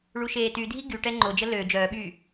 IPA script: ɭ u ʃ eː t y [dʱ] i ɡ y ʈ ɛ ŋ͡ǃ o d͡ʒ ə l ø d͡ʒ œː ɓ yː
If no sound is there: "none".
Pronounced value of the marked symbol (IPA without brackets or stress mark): dʱ